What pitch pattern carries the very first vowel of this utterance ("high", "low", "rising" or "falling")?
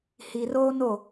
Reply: low